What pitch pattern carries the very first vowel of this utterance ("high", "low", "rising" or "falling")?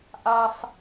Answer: high